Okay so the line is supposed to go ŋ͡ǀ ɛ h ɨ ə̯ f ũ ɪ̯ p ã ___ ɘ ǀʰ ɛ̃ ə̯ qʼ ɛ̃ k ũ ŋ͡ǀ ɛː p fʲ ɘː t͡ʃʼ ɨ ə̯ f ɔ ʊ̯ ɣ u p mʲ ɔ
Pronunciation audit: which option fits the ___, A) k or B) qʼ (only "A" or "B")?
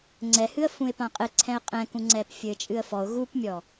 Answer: B